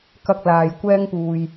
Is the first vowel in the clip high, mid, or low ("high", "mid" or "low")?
low